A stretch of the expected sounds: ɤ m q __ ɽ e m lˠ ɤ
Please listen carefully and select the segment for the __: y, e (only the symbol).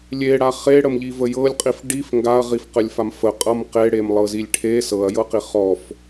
e